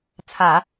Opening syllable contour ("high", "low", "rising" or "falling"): low